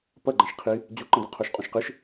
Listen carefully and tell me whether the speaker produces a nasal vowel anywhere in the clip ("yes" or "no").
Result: yes